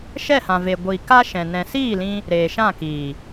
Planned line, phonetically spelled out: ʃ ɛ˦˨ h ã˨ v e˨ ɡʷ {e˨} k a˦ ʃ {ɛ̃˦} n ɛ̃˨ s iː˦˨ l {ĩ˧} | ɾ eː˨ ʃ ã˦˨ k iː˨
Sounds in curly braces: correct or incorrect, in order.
incorrect: i˨, incorrect: ɛ̃˨, correct

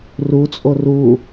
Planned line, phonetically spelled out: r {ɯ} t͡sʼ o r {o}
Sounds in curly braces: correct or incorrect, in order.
incorrect: u, incorrect: u

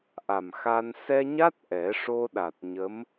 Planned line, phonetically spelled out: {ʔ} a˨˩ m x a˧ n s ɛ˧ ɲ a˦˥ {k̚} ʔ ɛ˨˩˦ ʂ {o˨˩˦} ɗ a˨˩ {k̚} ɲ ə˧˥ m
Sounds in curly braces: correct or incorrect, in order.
correct, incorrect: t̚, incorrect: o˧, incorrect: t̚

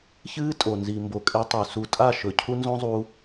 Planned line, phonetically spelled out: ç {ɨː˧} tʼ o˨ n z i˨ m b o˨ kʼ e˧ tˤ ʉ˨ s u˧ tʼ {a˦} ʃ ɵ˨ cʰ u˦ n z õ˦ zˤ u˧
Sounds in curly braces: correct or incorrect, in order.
incorrect: ɨː˦, incorrect: a˦˨

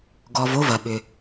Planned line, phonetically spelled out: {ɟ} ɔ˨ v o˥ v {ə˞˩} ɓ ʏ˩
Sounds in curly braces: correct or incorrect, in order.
incorrect: ɡ, incorrect: ɐ˩

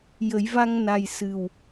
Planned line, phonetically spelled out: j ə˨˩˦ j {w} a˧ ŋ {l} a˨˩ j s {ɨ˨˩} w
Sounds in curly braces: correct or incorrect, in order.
incorrect: v, incorrect: n, correct

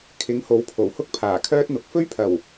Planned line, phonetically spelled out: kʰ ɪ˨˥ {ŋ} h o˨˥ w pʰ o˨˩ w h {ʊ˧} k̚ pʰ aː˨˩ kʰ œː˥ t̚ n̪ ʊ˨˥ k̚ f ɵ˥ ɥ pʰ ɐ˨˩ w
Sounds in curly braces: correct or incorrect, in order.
correct, incorrect: ʊ˥

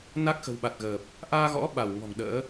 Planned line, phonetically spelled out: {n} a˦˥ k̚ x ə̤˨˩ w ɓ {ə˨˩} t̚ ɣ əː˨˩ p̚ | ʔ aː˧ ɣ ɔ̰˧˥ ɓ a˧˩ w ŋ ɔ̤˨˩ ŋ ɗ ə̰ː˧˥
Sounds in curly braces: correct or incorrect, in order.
correct, incorrect: a˨˩

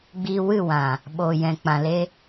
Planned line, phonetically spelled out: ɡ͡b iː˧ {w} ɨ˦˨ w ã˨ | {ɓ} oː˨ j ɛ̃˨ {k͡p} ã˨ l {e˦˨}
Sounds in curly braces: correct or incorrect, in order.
correct, correct, correct, incorrect: e˧

